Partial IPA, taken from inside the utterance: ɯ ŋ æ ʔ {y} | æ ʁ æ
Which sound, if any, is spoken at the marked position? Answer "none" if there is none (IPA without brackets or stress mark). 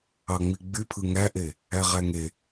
e